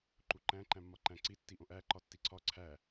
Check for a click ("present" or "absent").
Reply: present